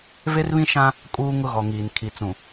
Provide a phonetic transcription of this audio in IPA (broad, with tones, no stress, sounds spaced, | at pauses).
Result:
v e˦ r β ĩ˦ ʃ ã˦ | kʼ uː˦ ŋ ʊ˦ ɣ ɔ˨ ŋ iː˨ n kʰ i˨ t͡s ũ˨